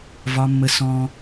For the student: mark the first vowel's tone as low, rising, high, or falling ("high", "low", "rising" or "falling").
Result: high